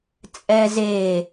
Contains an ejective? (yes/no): yes